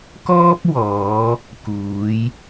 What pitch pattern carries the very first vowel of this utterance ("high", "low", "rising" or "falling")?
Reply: high